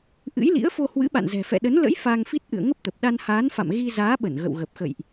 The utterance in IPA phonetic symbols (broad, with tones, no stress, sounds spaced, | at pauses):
ʔ ɨ̰˧˥ j l ḭ˧˥ ə̯ f o˧ h w ɨ̰˧˥ ɓ a̰˧˨ n z ɛ̤˨˩ f ɛ̰˧˨ ɗ ə˨˦ n l ə̰˧˥ j f aː˧ ŋ f i˦˥ t̚ ʔ ɨ̰˧˨ ə̯ ŋ ə˦˥ p̚ t̪ ə˨˩ p̚ ɗ a˧ n h aː˨˦ n f a̰˧˨ m ɣ i˧ z aː˨˦ ɓ ə˧˩ n ɣ ə̰˧˨ w ɣ ə˨˩ p̚ x ə̰˧˨ j ʔ